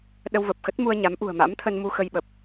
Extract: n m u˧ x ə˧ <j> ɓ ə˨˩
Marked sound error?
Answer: no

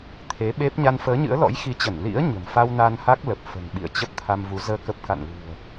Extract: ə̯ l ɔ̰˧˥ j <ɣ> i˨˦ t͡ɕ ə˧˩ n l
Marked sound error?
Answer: yes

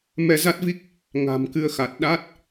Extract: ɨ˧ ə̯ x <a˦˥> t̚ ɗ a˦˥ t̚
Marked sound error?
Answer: yes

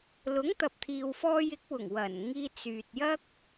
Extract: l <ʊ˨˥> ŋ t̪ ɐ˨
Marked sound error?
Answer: no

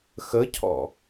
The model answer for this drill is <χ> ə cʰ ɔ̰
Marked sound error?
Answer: yes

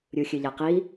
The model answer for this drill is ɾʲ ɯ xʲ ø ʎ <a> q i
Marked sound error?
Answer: no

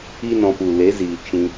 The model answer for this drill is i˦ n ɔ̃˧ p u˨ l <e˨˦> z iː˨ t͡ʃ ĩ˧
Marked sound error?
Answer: no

